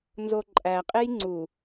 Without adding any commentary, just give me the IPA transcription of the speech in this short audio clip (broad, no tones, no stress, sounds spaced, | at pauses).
n z o ǃʼ æ qʼ e j ŋ͡ǀ u